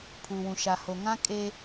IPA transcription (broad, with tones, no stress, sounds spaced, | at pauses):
pʰ uː˨ w ũ˨ ʃ a˨ h o˨ ŋ ã˦ kʼ e˦